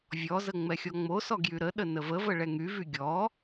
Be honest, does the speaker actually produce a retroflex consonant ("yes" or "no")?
yes